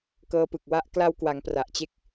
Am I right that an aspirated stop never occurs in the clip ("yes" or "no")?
yes